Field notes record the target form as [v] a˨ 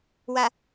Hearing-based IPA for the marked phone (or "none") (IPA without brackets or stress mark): w